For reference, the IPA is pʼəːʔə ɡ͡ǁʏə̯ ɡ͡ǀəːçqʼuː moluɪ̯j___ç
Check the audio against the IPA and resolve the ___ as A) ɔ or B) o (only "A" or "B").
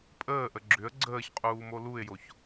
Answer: B